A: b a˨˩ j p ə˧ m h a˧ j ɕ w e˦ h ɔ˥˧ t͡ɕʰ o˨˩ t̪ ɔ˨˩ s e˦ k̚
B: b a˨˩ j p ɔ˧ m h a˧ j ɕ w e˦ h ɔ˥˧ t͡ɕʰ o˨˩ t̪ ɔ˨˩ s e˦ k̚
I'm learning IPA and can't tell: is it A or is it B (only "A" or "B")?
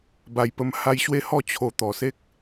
A